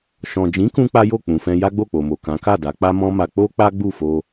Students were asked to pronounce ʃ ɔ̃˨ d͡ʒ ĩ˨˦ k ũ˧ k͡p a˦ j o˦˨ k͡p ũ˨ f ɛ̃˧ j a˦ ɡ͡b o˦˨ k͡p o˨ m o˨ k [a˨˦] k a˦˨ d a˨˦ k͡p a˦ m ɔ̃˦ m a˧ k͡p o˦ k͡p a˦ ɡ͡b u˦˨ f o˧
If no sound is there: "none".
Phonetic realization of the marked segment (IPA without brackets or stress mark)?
ã˨˦